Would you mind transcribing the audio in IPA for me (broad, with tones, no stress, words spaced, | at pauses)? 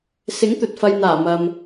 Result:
sɪ˨˥ŋt̪ɵ˨t̚fɐ˨jn̪aː˨˩ mɐ˨m